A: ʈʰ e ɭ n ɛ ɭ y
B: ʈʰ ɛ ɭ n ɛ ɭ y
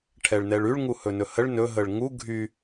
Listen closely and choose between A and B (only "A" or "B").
B